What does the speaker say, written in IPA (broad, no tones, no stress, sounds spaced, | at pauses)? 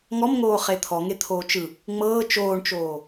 ŋ ɔ m ŋ oː χ e t̪ʰ ɔ ŋ e t̪ʰ oː t͡ʃ ɯ | ŋ͡m ɤː t͡ʃ oː ɳ t͡ʃ oː